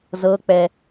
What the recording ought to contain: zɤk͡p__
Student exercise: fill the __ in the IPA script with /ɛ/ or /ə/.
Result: ɛ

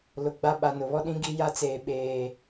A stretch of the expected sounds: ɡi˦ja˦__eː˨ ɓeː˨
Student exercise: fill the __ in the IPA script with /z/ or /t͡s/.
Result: t͡s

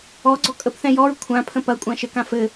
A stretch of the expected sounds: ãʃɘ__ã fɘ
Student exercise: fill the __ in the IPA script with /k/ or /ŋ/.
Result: k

